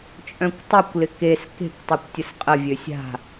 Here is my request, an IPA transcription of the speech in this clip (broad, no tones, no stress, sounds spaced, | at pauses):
t͡ʃʼ œ̃ kʷ tˤ u kʷ l ɪ k e s k e̤ kʷ tˤ ʏ kʷ tʲ ə s qʼ ə vʲ ø sʲ a̤